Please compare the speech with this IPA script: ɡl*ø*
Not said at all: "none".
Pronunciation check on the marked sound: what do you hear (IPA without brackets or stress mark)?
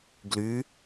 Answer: y